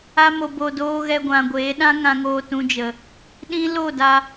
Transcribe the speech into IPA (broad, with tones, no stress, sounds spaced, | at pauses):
a˧ m o˨ b o˨ d oː˧ ɣ ɛ˧ ɡʷ ã˨ ɡʷ eː˨˦ ɗ ã˦ ŋ ã˧ ŋ oː˧ t ũ˧ d͡ʒ ə˨ | ɗ ĩ˦ l o˦˨ d a˧